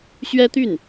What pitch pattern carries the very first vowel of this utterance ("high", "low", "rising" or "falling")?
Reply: high